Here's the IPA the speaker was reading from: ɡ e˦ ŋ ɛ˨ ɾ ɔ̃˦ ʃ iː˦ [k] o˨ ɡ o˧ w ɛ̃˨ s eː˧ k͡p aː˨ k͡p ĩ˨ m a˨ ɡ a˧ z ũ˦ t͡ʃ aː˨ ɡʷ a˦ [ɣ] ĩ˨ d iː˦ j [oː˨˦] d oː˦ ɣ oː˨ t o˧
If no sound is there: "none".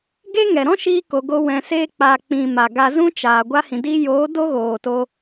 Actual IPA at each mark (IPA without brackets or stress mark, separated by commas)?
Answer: k, h, oː˨˦